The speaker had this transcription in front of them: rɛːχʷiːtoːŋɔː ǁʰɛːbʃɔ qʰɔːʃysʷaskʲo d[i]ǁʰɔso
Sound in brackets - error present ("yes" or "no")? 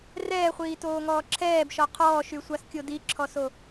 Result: no